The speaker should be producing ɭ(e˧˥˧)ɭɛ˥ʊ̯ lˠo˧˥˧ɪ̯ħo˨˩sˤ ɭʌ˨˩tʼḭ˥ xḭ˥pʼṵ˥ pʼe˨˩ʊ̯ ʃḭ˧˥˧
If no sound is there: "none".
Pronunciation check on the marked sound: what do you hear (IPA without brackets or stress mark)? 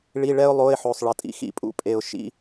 i˧˥˧